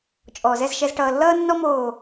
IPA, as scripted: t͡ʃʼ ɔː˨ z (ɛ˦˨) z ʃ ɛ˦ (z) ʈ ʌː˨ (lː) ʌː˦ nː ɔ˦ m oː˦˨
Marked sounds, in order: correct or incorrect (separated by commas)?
correct, correct, correct